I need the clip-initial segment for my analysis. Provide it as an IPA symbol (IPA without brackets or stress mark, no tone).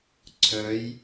ǀʰ